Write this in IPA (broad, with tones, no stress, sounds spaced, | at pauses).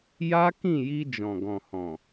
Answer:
j a˦ k ĩ˦˨ j i˧ d͡ʒ ɔ̃˨ ɡ ɔ̃˨ h ɔ̃˨